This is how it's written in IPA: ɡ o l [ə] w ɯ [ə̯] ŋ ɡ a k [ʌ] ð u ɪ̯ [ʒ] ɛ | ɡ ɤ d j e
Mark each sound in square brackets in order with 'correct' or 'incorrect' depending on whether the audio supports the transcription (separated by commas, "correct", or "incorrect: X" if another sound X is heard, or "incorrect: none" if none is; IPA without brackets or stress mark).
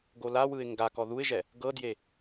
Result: incorrect: a, incorrect: ɪ̯, incorrect: ɔ, correct